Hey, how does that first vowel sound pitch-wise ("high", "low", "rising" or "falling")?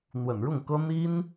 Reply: low